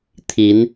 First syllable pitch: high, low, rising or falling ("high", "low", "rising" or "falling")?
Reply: rising